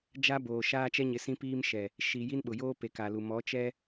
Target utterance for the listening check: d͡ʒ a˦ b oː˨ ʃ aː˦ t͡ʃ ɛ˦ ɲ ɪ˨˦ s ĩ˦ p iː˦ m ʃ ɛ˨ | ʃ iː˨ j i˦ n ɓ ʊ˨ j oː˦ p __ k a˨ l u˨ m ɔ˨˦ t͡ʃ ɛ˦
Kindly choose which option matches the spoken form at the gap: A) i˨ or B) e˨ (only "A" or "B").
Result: B